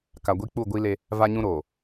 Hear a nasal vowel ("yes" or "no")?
yes